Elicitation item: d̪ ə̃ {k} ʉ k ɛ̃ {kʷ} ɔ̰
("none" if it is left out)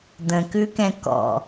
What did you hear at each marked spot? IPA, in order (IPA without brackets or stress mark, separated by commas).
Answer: k, k